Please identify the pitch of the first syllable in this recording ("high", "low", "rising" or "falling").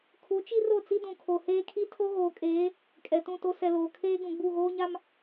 rising